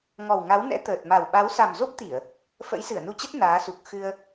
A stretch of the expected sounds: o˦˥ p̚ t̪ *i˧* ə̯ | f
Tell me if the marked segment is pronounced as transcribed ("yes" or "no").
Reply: no